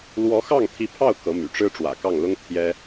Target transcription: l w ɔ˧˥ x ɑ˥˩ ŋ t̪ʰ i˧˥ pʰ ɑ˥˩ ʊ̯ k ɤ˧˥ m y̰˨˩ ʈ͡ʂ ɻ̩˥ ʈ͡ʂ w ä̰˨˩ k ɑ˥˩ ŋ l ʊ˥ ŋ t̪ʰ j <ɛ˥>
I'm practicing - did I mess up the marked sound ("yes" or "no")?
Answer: no